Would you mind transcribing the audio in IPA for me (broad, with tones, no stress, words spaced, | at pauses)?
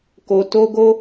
ko˧ to˦ɡo˦